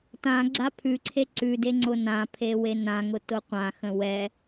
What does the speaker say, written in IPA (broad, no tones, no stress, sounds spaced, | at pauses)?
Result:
t ã ɡ͡ǀ a pʰ ʉ ǀʰ e ǀ ʉ d e ŋ͡ǀ ʊ n ã pʰ e w e n ã ŋ ʊ t ʊ qʷ ã x ə̃ w ɛ